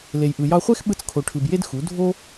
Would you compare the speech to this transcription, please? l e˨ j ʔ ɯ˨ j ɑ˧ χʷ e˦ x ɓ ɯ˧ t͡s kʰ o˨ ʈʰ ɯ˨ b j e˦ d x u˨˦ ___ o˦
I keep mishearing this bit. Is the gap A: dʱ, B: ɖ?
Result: A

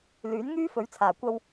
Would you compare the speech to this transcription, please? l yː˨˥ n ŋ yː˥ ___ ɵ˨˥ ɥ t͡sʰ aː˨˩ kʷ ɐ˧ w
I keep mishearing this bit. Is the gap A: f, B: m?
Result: A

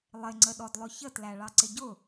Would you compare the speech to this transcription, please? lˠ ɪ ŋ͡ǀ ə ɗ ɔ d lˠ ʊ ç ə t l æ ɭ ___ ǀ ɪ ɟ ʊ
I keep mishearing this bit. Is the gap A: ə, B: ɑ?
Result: B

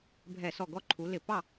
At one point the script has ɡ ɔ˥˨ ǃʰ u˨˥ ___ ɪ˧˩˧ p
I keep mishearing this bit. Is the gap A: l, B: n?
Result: A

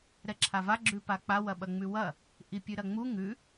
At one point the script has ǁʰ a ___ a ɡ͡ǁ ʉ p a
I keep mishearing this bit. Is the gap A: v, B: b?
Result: A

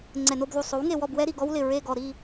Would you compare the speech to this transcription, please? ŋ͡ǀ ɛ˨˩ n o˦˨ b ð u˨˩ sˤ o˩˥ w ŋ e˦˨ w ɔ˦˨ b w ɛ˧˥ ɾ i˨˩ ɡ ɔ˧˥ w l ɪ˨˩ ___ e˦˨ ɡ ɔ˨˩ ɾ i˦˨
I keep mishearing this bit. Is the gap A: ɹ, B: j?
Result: A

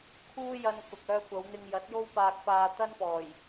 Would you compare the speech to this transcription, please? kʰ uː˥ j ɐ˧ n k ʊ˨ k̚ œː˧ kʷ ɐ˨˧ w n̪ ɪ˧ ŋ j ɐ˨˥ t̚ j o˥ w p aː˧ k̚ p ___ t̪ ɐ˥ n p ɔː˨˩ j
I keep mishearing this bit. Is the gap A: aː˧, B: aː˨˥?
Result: A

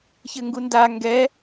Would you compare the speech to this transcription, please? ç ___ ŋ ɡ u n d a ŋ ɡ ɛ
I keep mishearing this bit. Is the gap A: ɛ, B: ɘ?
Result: B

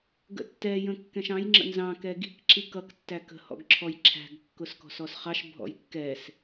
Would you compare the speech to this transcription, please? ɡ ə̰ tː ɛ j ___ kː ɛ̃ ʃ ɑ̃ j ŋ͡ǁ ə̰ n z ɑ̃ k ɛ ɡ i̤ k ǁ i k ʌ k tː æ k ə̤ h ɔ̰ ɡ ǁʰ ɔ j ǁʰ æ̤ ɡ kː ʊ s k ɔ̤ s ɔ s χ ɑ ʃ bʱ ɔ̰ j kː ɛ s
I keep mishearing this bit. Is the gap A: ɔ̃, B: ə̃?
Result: B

